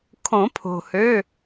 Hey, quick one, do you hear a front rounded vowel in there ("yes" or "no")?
yes